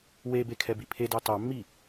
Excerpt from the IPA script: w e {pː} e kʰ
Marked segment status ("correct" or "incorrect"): incorrect